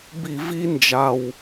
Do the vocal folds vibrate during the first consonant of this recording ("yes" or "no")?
yes